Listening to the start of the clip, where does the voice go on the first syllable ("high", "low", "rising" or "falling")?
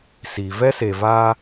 low